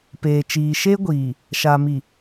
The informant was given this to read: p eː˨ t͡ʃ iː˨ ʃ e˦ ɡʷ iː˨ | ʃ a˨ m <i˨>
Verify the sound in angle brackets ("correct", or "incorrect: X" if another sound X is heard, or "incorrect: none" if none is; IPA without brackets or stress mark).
correct